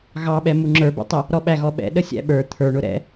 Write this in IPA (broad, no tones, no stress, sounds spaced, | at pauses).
ɣ ɑ ɓ ɛ m u ŋ͡ǁ ə˞ b ɛ̰ tˤ ə | ɾ ɔ ɓ æ ɣ ɔ ɓ ɛ̰ ɗ ə sʲ æ̰ ɓ ə˞ t̪ʰ ə˞ ɳ ʊ ɾ ɛ̰